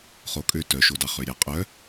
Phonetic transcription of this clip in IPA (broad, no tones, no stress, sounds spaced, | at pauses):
χ o kʼ ø t œ ʃ o d ɑ χ ø ɾʲ ɑ qʼ œ